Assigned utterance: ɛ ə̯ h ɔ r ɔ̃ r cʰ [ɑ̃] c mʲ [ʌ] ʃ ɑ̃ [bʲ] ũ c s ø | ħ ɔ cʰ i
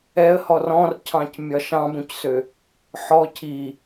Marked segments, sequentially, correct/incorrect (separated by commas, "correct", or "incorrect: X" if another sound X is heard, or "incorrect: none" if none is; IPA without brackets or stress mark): correct, incorrect: ɒ, incorrect: b